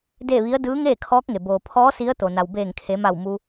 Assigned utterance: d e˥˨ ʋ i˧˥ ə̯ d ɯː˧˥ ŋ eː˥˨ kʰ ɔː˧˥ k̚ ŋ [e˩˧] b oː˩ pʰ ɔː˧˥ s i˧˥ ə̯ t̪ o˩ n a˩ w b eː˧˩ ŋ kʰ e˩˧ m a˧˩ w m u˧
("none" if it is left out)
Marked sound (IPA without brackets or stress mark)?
e˩